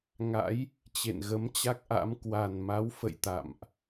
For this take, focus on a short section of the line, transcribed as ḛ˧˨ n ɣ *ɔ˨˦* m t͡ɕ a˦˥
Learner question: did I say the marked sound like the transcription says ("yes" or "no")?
no